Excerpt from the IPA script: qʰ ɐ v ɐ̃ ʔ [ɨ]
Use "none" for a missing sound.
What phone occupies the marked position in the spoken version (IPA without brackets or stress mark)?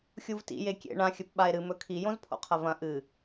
ɨ